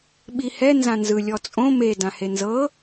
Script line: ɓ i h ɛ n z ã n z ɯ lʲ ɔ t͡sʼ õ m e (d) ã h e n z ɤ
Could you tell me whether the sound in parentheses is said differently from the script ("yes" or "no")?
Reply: no